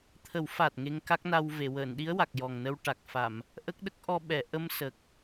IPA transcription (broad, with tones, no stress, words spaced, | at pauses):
t̪ʰə˨˩˦wfa˨˩t̚ ŋe˧ŋka˦˥k̚na˧wve˨˩˨ wəː˨˩˨nɗi˧˥ə̯ wa˨˩k̚jɔ˨˩ŋ nə˧wʈa˨˩k̚ fa˨˩˨m | ʔə˦˥k̚ɗə˦˥k̚ ʔɔ˧ɓɛ˨˩˨ʔə˧m sə˨˩k̚